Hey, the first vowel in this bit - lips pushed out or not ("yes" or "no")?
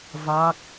no